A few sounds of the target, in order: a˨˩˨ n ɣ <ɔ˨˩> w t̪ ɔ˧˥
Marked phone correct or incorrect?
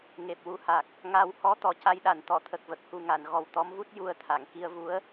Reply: correct